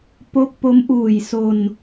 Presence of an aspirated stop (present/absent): absent